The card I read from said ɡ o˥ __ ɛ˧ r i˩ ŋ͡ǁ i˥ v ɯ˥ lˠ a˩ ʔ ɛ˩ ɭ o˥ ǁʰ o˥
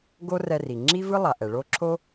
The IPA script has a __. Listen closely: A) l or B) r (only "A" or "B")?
B